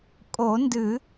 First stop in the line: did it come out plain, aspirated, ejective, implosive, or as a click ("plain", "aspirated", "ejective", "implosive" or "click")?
ejective